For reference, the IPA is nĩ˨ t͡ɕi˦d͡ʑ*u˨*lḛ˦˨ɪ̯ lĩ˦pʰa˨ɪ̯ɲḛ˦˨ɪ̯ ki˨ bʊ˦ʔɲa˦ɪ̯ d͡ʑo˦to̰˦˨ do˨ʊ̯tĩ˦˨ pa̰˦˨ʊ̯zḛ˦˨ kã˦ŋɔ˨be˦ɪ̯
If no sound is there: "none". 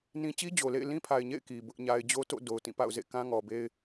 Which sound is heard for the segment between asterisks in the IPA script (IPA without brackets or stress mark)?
o˨